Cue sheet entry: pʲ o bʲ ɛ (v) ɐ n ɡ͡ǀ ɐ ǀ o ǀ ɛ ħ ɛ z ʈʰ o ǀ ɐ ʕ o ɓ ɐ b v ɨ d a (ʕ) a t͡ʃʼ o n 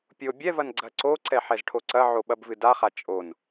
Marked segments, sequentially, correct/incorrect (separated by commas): correct, incorrect